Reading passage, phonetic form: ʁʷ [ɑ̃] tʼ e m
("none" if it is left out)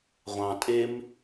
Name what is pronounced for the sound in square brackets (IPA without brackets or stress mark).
ɑ̃